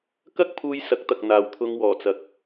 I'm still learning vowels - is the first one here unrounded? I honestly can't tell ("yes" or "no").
yes